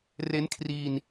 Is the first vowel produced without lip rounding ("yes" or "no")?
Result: yes